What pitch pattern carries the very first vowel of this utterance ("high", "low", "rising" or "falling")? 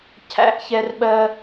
high